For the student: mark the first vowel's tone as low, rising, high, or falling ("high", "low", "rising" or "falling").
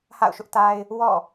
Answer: falling